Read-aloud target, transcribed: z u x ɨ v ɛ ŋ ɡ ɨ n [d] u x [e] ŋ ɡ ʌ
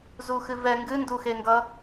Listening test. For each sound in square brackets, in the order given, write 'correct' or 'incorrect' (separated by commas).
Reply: correct, correct